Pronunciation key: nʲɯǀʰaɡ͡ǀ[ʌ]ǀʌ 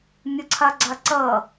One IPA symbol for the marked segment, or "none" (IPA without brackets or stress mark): a